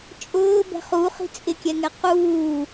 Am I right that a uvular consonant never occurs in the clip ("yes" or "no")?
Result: no